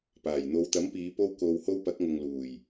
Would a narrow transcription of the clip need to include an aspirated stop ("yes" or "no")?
no